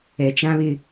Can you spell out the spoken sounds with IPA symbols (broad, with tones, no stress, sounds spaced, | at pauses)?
ɛ˦ t͡ʃ ã˦ β ɪ˦